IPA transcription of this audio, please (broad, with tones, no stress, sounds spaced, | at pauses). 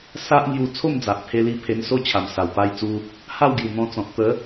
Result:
s a˦ ʔ ŋ j u˧ t͡sʰ o˥˧ m d͡z a˨ ʔ pʰ e˧ l i˧ pʰ e˧ n s o˥˧ t͡ɕʰ a˨˩ m s a˨˩ w p a˧ j t͡s u˧ | h a˥˧ w ɡ j u˨˩ n̪ ɔ̃˧ t͡s ɔ̃˨ t̚ t̪ ə˨˦